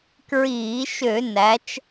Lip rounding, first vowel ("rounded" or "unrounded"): unrounded